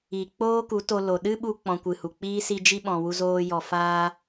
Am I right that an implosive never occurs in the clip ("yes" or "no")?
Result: no